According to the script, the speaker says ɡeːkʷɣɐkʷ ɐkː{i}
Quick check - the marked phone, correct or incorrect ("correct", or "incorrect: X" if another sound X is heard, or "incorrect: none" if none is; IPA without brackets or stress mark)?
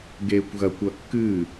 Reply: incorrect: ɨ